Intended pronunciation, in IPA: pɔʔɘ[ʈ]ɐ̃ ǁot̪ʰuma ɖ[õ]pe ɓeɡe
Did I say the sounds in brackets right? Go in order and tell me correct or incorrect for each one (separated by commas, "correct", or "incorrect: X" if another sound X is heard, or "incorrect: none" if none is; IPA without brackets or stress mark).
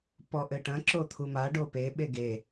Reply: correct, incorrect: o